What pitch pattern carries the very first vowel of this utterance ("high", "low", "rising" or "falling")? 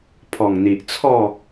low